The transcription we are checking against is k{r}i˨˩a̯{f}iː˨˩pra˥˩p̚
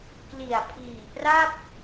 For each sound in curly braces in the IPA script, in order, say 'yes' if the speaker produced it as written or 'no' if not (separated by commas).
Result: no, no